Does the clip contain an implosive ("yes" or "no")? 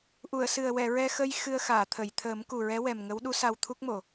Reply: yes